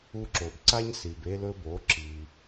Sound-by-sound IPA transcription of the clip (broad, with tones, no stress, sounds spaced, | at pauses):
u˧ ǁ o˨ b ǀ a˦ ɲ s i˨ b e˧ l ɵ˧ b o˨˦ ǁ i˧